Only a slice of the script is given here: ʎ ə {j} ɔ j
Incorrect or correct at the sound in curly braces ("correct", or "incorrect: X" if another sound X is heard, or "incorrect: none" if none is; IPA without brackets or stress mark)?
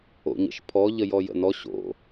correct